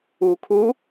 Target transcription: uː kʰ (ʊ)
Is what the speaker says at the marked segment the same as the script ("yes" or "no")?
no